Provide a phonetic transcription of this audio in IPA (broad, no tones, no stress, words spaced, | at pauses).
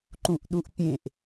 ǃũʔɗuʔpʲẽʔ